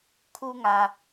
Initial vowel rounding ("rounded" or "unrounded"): rounded